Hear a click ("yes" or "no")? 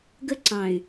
yes